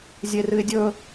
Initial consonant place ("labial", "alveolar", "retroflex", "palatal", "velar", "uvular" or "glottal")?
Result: alveolar